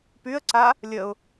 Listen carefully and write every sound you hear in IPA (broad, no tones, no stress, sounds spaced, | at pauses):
p y ə̯ ǀ a | lʲ ə ʊ̯